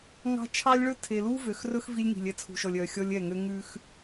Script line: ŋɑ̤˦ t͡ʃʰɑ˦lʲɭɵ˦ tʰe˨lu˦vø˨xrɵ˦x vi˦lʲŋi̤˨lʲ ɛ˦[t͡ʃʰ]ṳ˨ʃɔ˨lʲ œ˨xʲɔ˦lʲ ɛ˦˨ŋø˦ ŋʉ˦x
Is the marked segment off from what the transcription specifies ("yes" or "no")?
yes